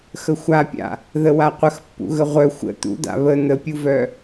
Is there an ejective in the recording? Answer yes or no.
no